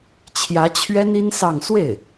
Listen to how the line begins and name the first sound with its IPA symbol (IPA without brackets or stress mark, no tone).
t͡ɕʰ